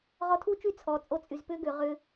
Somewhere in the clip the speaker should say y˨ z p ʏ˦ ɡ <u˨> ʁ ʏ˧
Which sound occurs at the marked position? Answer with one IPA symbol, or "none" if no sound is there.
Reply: ʏ˨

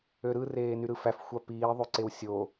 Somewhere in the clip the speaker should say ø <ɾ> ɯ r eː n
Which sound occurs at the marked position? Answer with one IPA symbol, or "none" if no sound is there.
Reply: ɾ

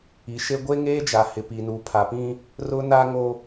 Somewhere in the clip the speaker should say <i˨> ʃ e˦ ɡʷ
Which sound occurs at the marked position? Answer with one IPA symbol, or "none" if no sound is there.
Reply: i˨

